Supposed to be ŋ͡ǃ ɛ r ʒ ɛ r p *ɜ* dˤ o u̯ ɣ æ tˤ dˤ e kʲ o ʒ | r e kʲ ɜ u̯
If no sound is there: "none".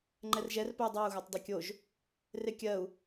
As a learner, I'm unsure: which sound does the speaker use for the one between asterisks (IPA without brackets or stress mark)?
ɜ